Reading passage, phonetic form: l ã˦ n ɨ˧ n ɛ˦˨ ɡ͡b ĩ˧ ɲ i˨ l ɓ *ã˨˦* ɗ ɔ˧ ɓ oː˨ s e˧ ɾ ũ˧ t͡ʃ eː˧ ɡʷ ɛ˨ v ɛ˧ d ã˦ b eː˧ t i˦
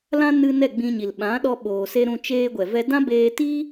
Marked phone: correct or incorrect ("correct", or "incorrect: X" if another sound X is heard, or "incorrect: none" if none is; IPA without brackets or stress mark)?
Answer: correct